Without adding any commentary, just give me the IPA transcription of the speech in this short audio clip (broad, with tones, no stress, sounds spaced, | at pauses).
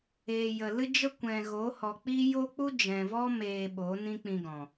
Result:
eː˨ j ə˨ l ɨ˦ d͡ʒ ə˦ kʷ ɛ̃˨ ɣ o˨˦ h ɔ˨ k͡p i˦ j o˦ k͡p u˦ d͡ʒ ɛ̃˨ v ɔ˦ m eː˧ ɓ o˨˦ n ĩ˦ k͡p ĩ˧ ɡ ɔ̃˨